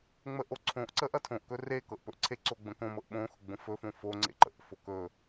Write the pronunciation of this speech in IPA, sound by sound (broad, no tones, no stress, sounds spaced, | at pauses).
ŋ͡m ə ʔ o ǀʰ õ ʔ ǀ ə ʔ ɐ tʰ õ ʔ k ɵ r e k ɤ ʔ p ɵ ʔ ǀʰ e ǀ o ɡ͡b ə̃ k õ m ɤ ʔ ɓ õ x ʊ ɡ͡b õ f ɵ f õ f o ŋ͡ǀ ḛ ǃ ə̰ ʔ f o k ɵ